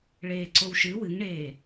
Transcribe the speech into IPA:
ɭeːǀowʃɨ wɨŋɳeː

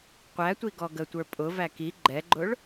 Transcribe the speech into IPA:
qʷætʷiɡɔ ɡətʷə˞ pʼʊvæ ki ɡ͡ǃɛɡ͡ǃʊɭ

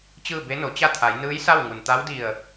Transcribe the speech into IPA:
t͡ɕɯː˥˨be˧˥no˩˧t͡ɕa˥˨ t̪ʰa˩˧j nɯː˧˥jsa˥˨wŋu˩nt̪a˧˥w di˧˩ə̯

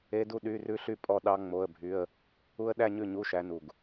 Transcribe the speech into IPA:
e˦˥du˥˧ ɗy˧˥˧rʉ˦˥ɬy˥˧ pʼɔ˥˧ɗɑ˦˥ ŋ͡mo˧˥˧ə̯bʱy˧˥˧ə̯ | u˦˥ə̯ɗæ˥˧ɲʉ˥˩ ɲu˧˥˧ʃæ˨˦nu˨˩ɡ

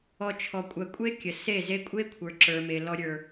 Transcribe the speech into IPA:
ɔ˨t͡ʃʰɔ˨kʷʼɜ˨kʷʼe˦ kʲə˨ se˦˨ze˦ kʷʼe˦kʷʰə˞˨ ǁə˞˨me˨ lɔ˨ɾʲə˞˨

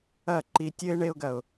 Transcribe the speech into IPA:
ɐ˦˨ǃi˧tʲɘ˦ɪ̯ ɳe˦ʊ̯ɡɐ˨ʊ̯

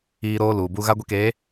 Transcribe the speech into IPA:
iː˦ɾoː˦ luː˨bu˦ ɣa˦ ɡʷi˦keː˨˦

